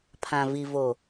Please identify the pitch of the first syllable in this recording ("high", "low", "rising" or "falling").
low